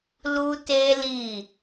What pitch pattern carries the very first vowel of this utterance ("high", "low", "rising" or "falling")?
high